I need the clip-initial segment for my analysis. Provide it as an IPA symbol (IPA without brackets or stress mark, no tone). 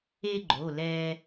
e